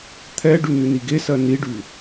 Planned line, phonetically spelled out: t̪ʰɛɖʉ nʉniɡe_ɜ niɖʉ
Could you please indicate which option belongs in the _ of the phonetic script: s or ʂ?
s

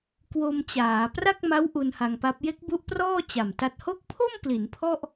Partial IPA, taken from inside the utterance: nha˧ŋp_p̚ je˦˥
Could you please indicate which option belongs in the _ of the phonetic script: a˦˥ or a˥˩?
a˦˥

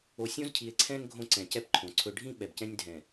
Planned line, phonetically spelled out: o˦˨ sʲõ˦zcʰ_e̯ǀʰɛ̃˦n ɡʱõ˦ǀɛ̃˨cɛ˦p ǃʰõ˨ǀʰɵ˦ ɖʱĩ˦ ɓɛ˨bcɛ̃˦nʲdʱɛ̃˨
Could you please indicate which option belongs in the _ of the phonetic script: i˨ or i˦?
i˨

